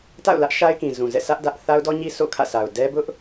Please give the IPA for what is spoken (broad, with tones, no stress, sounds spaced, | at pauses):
t a̰˦˨ ʊ̯ l ä˦ ʔ ʃ a˦ ɪ̯ k ĩ˨ z ũ˨ z ɛ̰˦˨ sʰ ä˦ ʔ d ä˦ ʔ θ a˦ ʊ̯ d ɔ˦ ɲ i˦ sʰ o̰˦˨ kʰ ä̰˦˨ sʰ a˨ ʊ̯ d ɛ˦ b ʊ˦ ʔ